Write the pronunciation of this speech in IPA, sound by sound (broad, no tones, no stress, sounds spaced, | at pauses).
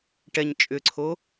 ʈ ɛ ɲ t͡ʃʼ ʏ ǀʰ o